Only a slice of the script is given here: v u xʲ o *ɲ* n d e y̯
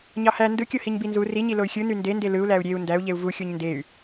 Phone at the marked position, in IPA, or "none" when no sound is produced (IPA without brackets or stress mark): ɲ